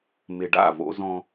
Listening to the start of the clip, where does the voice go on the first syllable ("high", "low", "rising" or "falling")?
low